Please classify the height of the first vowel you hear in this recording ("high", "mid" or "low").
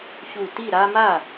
high